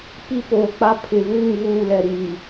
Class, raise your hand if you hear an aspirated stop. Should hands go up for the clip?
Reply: yes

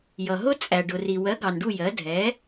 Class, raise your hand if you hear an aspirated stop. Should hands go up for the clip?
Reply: no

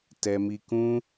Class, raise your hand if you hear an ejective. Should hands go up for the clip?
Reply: no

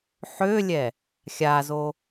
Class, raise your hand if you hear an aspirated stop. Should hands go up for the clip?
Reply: no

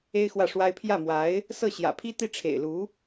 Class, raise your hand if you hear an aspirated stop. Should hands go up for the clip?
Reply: yes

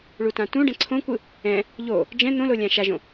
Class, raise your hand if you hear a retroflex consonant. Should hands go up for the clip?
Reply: yes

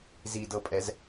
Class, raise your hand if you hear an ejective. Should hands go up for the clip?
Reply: yes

